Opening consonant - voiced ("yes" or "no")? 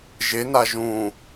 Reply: yes